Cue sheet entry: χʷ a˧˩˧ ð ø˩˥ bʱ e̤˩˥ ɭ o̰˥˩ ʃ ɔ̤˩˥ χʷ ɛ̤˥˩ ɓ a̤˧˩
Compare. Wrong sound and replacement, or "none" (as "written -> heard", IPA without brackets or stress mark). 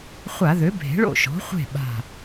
ɛ̤˥˩ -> e̤˥˩